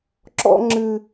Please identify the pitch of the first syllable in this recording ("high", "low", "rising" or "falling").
high